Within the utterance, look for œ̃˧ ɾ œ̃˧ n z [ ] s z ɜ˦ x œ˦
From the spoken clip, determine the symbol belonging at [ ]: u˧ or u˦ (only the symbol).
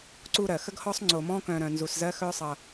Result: u˧